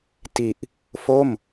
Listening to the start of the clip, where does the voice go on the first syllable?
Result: low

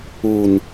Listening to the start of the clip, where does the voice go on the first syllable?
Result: low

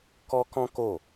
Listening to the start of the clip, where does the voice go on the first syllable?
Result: high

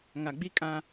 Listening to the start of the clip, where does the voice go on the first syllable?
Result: low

